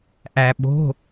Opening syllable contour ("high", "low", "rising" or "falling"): low